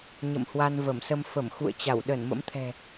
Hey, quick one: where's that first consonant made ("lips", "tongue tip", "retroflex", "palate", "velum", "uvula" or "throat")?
palate